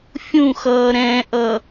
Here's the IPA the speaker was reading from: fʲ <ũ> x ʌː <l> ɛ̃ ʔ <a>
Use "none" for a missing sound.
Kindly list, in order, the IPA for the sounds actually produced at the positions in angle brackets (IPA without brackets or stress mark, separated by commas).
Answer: ũ, ɾ, ʌ